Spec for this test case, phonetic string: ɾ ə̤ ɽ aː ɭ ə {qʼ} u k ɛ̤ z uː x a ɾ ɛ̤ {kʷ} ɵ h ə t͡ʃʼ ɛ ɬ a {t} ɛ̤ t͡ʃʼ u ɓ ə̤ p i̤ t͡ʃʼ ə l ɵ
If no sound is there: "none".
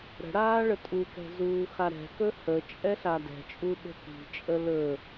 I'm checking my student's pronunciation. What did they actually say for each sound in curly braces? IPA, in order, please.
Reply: tʼ, k, d

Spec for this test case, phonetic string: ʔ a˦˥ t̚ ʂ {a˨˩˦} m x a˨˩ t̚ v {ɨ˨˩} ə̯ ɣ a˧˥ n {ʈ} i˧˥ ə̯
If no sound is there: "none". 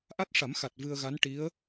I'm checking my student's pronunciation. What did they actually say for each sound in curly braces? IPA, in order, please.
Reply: a˨˩˦, ɨ˧, ʈ

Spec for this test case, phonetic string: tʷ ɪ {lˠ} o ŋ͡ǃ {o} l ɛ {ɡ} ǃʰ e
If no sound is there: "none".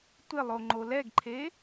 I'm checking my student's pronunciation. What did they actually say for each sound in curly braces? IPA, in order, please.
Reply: lˠ, o, ɡ

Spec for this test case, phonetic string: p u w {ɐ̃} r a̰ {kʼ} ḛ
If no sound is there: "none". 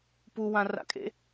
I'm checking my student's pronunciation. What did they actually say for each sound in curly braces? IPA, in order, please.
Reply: ã, kʼ

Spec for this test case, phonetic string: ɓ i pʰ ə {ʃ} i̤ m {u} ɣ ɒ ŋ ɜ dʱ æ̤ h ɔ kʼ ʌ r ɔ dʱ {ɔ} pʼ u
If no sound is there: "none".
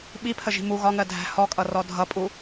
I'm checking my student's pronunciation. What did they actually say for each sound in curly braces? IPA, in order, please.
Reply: ʒ, u, ʌ

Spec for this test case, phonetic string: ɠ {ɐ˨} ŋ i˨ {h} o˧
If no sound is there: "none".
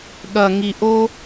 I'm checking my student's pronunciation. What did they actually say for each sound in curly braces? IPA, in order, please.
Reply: ɐ˨, ʔ

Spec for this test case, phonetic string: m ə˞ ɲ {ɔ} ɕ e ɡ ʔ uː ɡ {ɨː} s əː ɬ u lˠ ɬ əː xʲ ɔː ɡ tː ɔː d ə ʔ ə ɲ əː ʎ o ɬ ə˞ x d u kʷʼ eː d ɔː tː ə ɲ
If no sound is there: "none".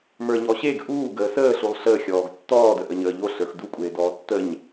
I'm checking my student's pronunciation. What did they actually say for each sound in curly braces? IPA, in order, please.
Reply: ɔ, əː

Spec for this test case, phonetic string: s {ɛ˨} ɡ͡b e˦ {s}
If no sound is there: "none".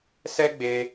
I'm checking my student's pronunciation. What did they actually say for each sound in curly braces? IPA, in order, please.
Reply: ɛ˦, none

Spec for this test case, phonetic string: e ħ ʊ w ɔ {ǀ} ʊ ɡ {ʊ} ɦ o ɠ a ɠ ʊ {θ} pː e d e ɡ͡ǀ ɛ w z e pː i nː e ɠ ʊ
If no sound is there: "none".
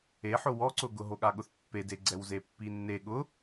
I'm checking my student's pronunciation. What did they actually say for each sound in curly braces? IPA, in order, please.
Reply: ǀ, ʊ, θ

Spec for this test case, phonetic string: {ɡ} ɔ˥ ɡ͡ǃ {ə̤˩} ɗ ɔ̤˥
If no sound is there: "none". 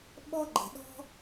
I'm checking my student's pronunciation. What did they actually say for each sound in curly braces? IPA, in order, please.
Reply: ɓ, ə̤˩

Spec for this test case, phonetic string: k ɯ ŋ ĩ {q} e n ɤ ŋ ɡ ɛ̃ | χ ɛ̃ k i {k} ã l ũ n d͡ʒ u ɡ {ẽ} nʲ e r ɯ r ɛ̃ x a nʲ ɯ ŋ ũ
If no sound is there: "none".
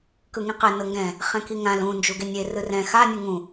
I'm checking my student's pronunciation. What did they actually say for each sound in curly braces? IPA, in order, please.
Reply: q, ŋ, e

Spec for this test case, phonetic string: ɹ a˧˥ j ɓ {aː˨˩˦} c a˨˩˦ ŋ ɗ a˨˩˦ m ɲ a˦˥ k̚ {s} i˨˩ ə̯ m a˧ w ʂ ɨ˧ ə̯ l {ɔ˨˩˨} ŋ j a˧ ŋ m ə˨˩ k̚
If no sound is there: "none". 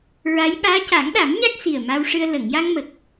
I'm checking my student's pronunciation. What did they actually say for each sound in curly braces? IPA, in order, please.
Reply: aː˧˥, s, ə˨˩˨

